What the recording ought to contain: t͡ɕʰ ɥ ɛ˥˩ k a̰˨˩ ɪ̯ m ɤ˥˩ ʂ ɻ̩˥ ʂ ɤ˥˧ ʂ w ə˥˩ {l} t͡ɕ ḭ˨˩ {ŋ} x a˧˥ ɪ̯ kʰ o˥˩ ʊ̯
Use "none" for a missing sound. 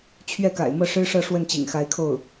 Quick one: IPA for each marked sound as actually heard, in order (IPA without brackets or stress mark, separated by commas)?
n, ŋ